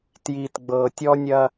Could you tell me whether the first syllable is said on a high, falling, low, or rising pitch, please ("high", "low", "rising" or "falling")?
low